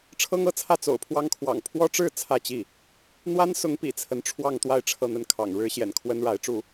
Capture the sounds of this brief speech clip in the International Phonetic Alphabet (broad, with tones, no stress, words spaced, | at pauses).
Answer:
ʈ͡ʂʰɤ˥ŋɤ˥˧t͡sʰä˥˩ t͡so̰˨˩ʊ̯pʰwɑ˥ŋkʰwɑ̰˨˩ŋ pʰwɔ˥ʈ͡ʂɻ̩˥˧ t͡sʰä˥˧t͡ɕi˥˩ | n̪wa˥nsʊ˧˥ŋ pḭ˨˩t͡sʰə˧˥nʈ͡ʂʰwɑ˥˧ŋt̪wa˥˧ɪ̯ ʈ͡ʂʰɤ˥˧n̪ə˥˩nkʰɑ̰˨˩ŋ ɻɻ̩˥ɕjɛ̰˨˩nkʰwə˥n ɻa˧˥ɪ̯ʈ͡ʂu˥˩